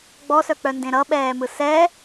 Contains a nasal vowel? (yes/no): yes